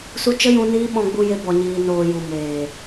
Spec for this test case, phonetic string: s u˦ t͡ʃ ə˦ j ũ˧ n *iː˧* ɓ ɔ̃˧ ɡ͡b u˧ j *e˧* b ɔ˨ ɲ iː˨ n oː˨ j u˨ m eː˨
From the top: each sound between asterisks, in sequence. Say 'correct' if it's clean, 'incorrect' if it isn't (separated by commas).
incorrect, correct